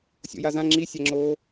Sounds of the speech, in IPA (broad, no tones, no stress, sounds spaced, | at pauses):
sʲ o̰ j a z ã ŋ͡ǁ i sʲ æ ŋ͡ǁ oː